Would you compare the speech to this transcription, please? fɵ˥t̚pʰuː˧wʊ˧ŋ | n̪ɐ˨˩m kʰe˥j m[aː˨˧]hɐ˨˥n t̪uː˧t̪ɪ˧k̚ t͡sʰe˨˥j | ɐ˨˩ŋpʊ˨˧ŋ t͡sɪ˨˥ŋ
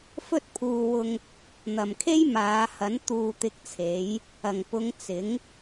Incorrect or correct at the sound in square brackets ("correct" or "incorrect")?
correct